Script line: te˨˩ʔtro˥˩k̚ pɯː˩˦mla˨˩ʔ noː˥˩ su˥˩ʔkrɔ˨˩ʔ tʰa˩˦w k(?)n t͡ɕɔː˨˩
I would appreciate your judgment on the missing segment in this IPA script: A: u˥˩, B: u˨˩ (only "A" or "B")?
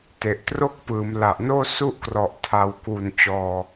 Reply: B